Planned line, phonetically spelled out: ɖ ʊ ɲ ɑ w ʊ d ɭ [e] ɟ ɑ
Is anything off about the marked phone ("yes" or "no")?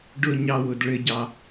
yes